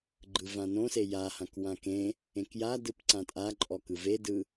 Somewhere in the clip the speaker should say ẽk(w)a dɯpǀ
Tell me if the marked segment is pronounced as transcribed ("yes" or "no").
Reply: no